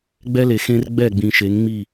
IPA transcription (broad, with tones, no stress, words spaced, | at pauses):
ɡ͡bɛ˦le˨xẽ˦r ɡ͡bɛ˦˨ɡ͡bĩ˨ʃe˨˦ŋŋ͡mi˦˨